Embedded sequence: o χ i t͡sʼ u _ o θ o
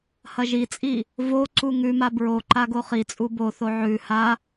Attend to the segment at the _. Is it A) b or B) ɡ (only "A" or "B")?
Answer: A